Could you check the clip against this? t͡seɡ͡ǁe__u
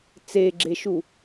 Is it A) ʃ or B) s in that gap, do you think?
A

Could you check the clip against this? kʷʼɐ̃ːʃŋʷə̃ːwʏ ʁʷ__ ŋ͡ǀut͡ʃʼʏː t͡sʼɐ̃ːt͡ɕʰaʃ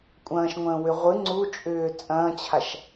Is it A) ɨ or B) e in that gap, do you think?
A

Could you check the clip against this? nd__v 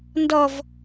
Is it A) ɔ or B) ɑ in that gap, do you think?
A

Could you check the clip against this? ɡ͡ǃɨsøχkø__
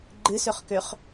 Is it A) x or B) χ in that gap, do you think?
B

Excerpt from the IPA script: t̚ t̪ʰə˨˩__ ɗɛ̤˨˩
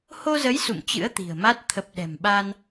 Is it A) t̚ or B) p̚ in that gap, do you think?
B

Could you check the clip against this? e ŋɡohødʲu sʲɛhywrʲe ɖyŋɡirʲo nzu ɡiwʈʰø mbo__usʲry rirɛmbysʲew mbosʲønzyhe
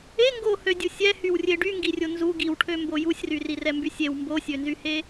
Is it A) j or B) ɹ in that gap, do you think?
A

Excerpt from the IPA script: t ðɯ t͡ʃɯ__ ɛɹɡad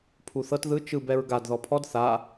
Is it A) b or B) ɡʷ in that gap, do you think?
A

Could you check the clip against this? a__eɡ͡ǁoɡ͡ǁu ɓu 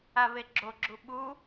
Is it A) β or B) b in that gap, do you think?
A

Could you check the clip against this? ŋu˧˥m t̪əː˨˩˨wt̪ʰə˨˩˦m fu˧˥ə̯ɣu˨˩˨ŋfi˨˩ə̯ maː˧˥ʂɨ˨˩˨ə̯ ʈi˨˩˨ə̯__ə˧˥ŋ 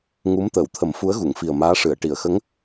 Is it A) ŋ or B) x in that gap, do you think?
B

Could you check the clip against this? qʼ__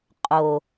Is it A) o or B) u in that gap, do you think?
A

